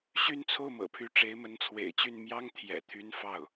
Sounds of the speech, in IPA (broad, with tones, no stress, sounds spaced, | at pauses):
ɕ y˥ n t͡sʰ o˥˩ ʊ̯ m ɤ̰˨˩ pʰ y˧˥ ʈ͡ʂ e˧˥ ɪ̯ m ə˧˥ n t͡sʰ w ḛ˨˩ ɪ̯ t͡ɕ y˥˩ n m j ɑ˥ ŋ t̪ʰ j ɛ̰˨˩ t̪ʰ y˥ n f ɑ˥˩ ʊ̯